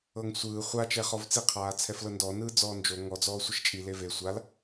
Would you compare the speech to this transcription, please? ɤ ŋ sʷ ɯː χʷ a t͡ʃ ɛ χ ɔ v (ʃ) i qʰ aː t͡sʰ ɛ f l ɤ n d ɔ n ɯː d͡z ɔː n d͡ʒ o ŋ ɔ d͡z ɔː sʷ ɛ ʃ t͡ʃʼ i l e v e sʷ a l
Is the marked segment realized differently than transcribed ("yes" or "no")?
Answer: yes